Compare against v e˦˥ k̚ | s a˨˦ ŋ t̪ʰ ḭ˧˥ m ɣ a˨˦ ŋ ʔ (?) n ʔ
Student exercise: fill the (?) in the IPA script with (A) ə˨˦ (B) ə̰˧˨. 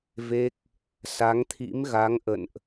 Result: B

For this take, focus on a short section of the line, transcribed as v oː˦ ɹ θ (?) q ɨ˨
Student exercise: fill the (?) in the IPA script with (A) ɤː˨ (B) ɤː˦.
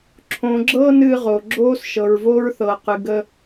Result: A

